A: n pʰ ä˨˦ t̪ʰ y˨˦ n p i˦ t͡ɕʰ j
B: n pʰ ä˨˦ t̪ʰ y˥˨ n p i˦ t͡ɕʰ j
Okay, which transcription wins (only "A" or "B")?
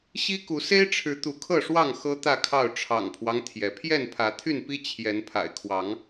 B